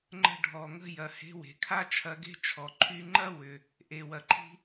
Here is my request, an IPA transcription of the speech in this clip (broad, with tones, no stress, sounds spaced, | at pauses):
ŋ͡ǃ ə̤˧ ɖʱ ɔ˩ ŋ ə̤˧ j ɐ˩ h e̤˧ w e̤˩ kʰ a˥ t͡ʃʰ ɐ˧ ɡ e̤˥ t͡ʃʰ ɔ˩ ǃʰ y˧ ŋ͡ǃ ɐ˥ w ʏ˩ | ʔ e˩ w ɐ˩ ǃʰ i̤˥